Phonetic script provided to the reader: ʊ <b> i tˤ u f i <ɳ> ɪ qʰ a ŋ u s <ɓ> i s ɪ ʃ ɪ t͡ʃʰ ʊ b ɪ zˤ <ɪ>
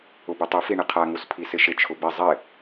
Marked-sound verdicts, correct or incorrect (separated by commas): correct, correct, incorrect, correct